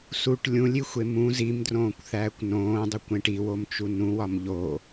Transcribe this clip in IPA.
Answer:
s u ʈ lʲ ũ lʲ i xʷ e m ũ z i m d r õː kʷ θ æː kʷ n õː dˤ u kʷ ẽ ʈ i w o m t͡ʃ u n ũ w ɒ m ʎ o

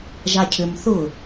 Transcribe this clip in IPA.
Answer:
ʒ a cʰ ʏ m θ ʊ

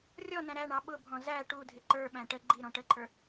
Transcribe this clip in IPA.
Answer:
rʲ ɔ n æ̃ ɾ æ ɳ ɑ ɓ ʊ bʱ ɔ̃ z æ ʈ u dʱ ɪ ǃ ə˞ ɓ æ̃ ʈ ə ɡ͡ǃ i ɾ ɔ̃ ʈ ə ǃʰ ə˞

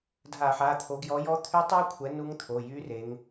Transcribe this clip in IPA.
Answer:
dʱ a˧˩˧ ħ a˩˧˩ t̪ʰ o˨˦ ɡ j ɔ˨˦ j ɔ˦˥ t̪ʰ y˦˥ tˤ u˦˥ kʷʰ ɛ˨˦ n u˦˥ ŋ t̪ʰ o˩˧˩ j y˦˥ r e˨˦ ŋ

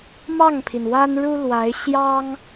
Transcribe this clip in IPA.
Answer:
m ɑ˥˩ ŋ pʰ i˩ n w a˥ n ɻ u˥ l w a˧˥ ɪ̯ ɕ j ɑ˥ ŋ

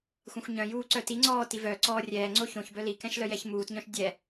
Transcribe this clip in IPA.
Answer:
xʷ ɛ̃ xʷ ɲ œ̃ j uː ǀ œ t i ŋ͡ǀ ɔː t i v œ ǀ ɔː rʲ ɛː ŋ͡ǀ o ç õ ç b œ l i k ɛ̃ ʃ l œ j ɛ ç m uː t ɲ œ̃ ʃ dʲ ɛ

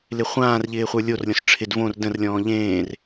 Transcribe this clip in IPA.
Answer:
l ɪ χʷ ãː r ʎ ɪː χʷ ə˞ lʲ o r lʲ ɔ̃ s ʈ͡ʂʰ ɪ d v õ r d ə̃ r lʲ ɔ̃ː ʎ ẽː r

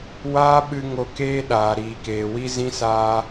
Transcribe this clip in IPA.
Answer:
w aː˦ ɓ ɨ˧ ŋ o˧ k eː˦ ɗ aː˨ ɾ iː˨ k eː˨ w i˦ z ĩ˦ s aː˧

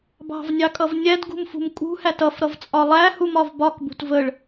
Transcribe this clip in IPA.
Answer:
b ɑ̤ v nʲ ɑ kʼ ʌ v nʲ æ d ɡ ṳ m f ṳ m kʼ ṳ h æ t ʌ f ɾ ʌ v t͡sʼ ɒ lˠ æ h u m ɒ v b ɒ k b ṳ t v ə ɭ

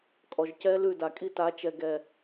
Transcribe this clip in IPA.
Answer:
kʼ ɔ˨ ʒ c ɛ˦ l ʉ˦˨ d a˨ kʼ i˦˨ t a˨˦ t͡ʃ ɛ˨ ɡ ɛ˨

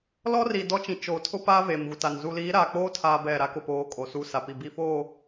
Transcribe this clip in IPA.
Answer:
l ɔ˦ r i˨ d ɔ˦ t͡ʃ ĩ˨ t͡ʃ oː˨ tʰ ʊ˦ p a˦ v eː˨ m ɣ u˨ t a˨ n z u˨ l iː˨˦ ɾ aː˨ k͡p oː˦ tʰ aː˦ b ɛ˦˨ ɾ a˦ k ʊ˨ p oː˨˦ kʼ o˨ s u˦˨ s a˨ p i˨ b i˦˨ f oː˦˨

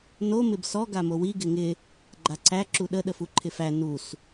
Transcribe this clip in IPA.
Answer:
n o m ɪ b s ɔ ɡ a m o w i ɡ ɪ ŋ ɪ | ɡ͡ǃ a ǀ æ ǁ u ɗ ə ɗ ə f u ǃʰ ɪ f æ n u s

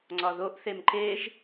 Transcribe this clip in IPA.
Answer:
ŋ͡ǀ ɒ ð o ʔ θ e m ǃ e ʒ

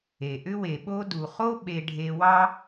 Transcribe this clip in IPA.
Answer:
e˩ ʔ ʏ˥ w e˩ ɓ o˥ d u˩ χ o˥ ɓ e˧ ɖʱ e˧ w ɑ˥

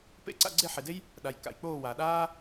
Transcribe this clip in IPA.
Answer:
p ḛ˥˩ ǀ a̰˥˩ ɡ͡ǀ e˥˩ ħ e˩ d e˥ j | ɗ a˩ j k a̰˩ j k͡p oː˥˩ w a˩ ɗ aː˥

